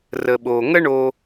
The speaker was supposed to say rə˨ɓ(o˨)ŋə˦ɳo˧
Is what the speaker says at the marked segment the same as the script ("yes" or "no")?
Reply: yes